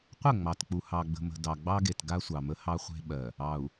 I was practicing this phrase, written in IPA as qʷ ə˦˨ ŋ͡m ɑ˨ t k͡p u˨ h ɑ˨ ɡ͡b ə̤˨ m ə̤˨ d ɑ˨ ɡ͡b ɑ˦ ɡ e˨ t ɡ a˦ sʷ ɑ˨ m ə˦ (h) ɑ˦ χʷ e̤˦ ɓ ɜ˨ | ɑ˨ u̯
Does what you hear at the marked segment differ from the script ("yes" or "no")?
no